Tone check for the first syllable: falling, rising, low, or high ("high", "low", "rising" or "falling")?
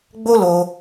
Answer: high